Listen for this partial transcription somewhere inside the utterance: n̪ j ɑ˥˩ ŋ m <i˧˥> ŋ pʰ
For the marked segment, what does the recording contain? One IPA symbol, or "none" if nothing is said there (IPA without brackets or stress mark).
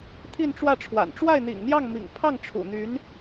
ḭ˨˩